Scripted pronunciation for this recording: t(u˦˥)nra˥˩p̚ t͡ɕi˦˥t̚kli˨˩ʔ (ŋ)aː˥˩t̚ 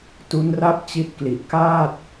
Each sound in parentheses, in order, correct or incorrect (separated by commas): correct, incorrect